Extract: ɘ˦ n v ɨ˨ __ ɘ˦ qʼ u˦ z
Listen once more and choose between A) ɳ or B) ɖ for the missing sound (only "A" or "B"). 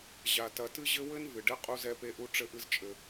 B